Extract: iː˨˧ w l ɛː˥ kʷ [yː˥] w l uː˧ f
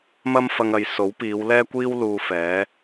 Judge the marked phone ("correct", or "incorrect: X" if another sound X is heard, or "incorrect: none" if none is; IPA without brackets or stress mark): incorrect: iː˥